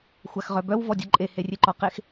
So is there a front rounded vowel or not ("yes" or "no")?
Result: yes